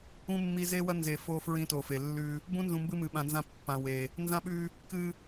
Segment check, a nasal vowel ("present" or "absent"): present